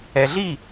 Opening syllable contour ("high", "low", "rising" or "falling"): low